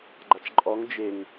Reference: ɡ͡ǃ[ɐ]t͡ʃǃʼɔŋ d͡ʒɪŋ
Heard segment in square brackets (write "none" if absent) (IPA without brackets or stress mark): a